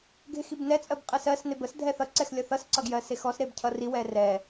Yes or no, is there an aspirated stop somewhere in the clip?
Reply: yes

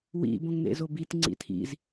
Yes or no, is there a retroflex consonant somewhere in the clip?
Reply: no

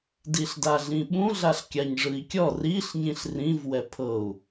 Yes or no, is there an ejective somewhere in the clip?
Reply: no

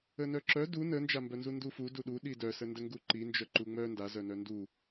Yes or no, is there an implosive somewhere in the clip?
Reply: yes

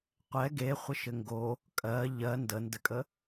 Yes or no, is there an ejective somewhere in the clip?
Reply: yes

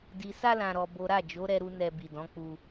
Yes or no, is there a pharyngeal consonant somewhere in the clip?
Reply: no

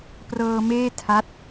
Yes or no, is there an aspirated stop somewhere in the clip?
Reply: yes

